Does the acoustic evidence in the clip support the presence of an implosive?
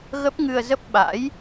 yes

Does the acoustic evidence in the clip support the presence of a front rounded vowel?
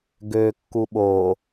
yes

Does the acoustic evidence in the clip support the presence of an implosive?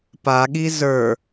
yes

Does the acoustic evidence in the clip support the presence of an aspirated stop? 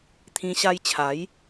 yes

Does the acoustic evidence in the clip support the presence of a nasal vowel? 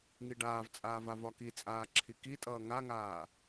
no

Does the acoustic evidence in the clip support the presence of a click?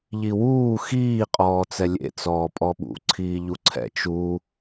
yes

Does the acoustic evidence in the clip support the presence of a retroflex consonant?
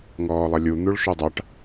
yes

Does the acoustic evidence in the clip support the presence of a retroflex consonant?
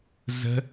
no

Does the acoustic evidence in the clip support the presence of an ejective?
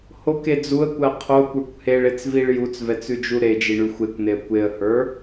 no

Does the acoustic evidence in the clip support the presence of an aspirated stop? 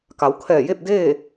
yes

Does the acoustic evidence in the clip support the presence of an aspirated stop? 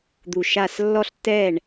no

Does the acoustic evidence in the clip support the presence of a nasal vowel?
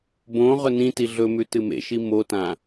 yes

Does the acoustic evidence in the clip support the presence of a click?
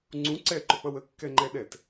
yes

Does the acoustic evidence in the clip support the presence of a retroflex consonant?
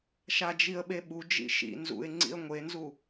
no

